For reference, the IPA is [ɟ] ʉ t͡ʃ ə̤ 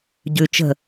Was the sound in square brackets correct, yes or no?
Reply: yes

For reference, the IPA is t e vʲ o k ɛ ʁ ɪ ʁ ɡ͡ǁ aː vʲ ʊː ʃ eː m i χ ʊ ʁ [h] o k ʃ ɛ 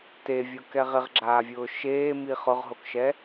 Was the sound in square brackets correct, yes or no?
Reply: no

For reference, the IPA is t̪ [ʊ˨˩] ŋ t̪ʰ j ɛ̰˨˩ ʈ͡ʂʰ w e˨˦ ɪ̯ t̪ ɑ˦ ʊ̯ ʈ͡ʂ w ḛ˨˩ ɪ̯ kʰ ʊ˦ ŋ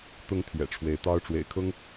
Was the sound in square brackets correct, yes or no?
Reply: no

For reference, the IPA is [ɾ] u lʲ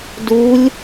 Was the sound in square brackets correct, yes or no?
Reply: no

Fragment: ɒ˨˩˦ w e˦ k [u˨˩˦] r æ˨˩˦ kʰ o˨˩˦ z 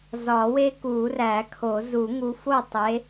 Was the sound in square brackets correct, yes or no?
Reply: yes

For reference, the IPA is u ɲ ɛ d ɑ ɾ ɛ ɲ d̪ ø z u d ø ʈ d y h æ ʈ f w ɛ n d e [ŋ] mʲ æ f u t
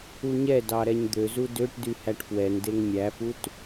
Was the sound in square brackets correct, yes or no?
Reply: yes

